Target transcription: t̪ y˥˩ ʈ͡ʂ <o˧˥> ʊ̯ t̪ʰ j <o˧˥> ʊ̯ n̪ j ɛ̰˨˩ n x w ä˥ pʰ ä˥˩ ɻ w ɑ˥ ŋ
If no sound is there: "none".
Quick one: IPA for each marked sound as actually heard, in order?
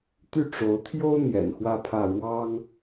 o˧˥, o˥

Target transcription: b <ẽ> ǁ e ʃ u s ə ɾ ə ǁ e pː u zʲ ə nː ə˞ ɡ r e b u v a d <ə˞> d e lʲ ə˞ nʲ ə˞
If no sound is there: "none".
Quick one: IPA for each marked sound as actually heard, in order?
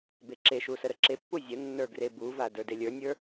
e, ə˞

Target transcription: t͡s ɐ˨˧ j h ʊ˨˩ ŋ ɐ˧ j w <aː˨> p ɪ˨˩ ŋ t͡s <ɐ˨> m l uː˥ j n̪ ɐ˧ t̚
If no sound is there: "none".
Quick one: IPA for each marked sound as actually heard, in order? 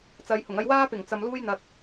aː˥, ɐ˨

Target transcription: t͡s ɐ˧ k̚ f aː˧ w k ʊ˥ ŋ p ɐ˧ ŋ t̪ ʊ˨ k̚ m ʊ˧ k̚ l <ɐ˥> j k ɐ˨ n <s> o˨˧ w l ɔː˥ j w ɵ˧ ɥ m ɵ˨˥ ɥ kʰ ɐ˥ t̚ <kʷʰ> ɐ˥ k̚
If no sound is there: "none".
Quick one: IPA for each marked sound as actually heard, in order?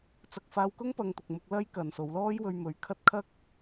ɐ˥, s, kʰ

